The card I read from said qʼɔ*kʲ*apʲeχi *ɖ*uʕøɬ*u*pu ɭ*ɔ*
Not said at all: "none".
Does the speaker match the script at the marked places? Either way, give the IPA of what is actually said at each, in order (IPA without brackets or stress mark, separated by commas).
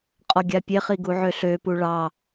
ɡʲ, ɡ, ø, ɑ